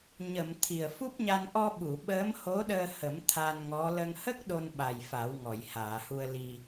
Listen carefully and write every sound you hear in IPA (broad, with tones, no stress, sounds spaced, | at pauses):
ɲ ə˨˩˨ m t̪ʰ i˨˩ ə̯ f u˦˥ p̚ ɲ a˧ n ʔ ɔ˧ ɓ u˨˩˨ ɓ əː˧˥ m h o˧˥ ɗ əː˧ h ə˨˩˦ m t̪ʰ a˧ n ŋ ɔ˧˥ l ə˧ ŋ h ə˦˥ k̚ ɗ o˧ n ɓ a˨˩ j f a˨˩˦ w ŋ ɔ˨˩˨ j h aː˨˩˨ h u˧ ə̯ l i˧